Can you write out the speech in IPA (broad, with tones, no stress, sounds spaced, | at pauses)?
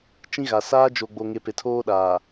t͡ʃ ĩ˦ ɣ a˨ s aː˦ d͡ʒ o˨ ɡ͡b o˨ ŋ e˨ p e˨ tʰ oː˦ ɗ aː˨